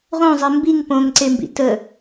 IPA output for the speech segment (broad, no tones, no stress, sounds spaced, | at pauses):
ʁ õ zˤ e m b i ŋ p õ ŋ ǀ e m b ḭ t ə